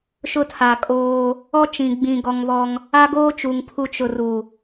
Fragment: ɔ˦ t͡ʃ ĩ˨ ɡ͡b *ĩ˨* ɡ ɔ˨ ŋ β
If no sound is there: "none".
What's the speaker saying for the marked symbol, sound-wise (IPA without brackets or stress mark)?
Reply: ĩ˨